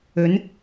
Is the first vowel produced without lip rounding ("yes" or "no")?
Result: no